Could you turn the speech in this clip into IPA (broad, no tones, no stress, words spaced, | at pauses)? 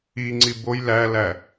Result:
iŋ͡ǀi boj lælæ